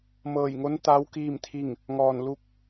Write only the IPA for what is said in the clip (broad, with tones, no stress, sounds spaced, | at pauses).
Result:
m ɤː˧˩ j ŋ o˧˥ n t̪ a˧˥ w k iː˥˨ m t̪ʰ i˥˨ ŋ | ŋ ɔː˧˩ n l u˥˨ k̚